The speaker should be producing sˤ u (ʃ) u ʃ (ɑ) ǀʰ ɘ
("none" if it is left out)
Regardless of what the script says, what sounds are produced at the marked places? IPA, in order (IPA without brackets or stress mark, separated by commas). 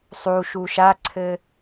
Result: ʃ, a